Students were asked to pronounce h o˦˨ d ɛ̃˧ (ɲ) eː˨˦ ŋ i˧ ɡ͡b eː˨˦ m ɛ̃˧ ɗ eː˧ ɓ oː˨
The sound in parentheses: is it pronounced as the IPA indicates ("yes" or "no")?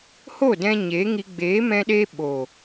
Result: yes